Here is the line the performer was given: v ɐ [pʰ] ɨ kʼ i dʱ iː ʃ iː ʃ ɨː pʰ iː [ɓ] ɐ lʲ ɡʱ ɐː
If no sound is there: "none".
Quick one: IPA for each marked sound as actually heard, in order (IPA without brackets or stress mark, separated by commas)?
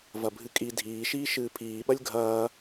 bʱ, ɓ